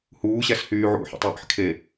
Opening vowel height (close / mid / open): close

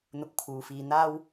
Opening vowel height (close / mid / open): close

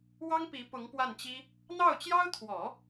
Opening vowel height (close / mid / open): open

